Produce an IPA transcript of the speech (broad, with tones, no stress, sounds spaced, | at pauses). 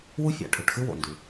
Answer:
w u˥ fʲ a̰˩ ʈʰ ɵ˩ ʈ x ɨ˥ w o̰˩ n d ʉ˩